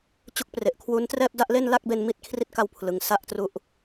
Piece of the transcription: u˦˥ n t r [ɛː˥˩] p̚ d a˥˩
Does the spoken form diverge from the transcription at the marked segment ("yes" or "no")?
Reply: no